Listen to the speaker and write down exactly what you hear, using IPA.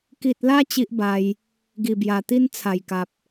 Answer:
k i˨ t̚ l a˧ t͡ɕ i˦ ʔ b a˧ j | ɡ i˨˩ b j a˨˩ t̪ i˦ n t͡sʰ a˨˩ j k a˨ p̚

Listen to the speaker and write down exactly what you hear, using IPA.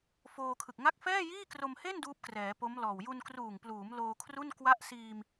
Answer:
f oː˧ kʰ ɯ˨˩ k̚ ŋ a˥˩ k̚ f ɛː˥˩ j iː˥˩ k r o˧ m h e˥˩ n d uː˦˥ p̚ k r ɛː˩˦ p o˦˥ m l ɔː˨˩ w j u˧ n k r uː˨˩ ŋ p l uː˩˦ m l oː˧ kʰ r u˥˩ n k w a˦˥ ʔ s iː˧ m

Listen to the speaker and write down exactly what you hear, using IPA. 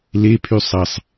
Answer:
l e pʰ y sˤ ɐ sˤ

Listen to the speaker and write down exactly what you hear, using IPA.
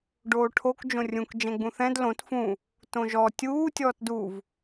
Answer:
ɖ oː ʈʰ o k d͡ʒ õ rʲ ũ k d͡ʒ ɛ̃ ɡ͡b ũ θ ɛ̃ d l õ t f ũ | t õ ʒ ɔ tʲ uː tʲ ɔː t d u v

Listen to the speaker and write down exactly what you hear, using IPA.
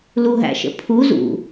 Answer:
l u ɦ æ̰ ʃ ə̰ pʰ u z ṵ

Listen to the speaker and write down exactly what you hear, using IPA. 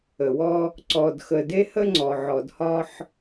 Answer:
ə˨ w ɔ˦ | ǀ ɔ˨ d x ə˨ d e˦ h ə˦ ŋ͡ǀ ɔ˨ ʕ ɔ˨ d h ɒ˦ ħ

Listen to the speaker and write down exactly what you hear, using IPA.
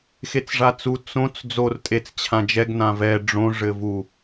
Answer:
x e t͡s ʐ a t͡s u t͡s õ t͡s d͡z o r tʼ e t͡s t͡ɕʰ ã d͡ʒ ɛ ɡ n ã v ɛ ɖ͡ʐ õ ʐ ɘ v u

